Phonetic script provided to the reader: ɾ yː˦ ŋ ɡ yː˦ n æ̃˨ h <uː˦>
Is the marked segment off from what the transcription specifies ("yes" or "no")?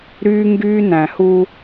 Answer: yes